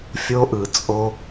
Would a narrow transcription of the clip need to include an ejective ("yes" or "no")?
yes